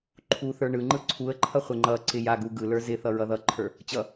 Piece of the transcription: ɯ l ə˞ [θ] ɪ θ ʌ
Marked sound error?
yes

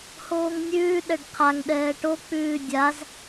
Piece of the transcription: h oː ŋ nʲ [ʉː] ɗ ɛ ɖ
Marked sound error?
no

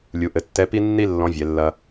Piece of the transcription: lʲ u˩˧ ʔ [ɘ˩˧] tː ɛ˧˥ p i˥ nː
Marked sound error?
no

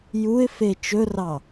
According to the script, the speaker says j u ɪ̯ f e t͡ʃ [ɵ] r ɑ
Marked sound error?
no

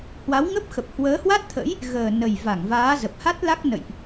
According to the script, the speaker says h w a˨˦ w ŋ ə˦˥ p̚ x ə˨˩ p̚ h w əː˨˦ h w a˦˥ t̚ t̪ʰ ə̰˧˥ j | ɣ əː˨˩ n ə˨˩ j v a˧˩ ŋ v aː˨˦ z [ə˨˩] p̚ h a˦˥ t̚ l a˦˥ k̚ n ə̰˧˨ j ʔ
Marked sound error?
no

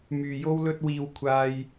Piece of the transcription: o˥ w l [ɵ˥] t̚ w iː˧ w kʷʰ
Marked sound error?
no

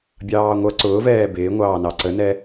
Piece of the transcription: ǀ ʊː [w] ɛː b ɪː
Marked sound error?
yes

